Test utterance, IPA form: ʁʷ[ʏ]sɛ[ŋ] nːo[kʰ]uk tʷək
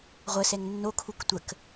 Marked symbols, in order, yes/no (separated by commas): no, yes, yes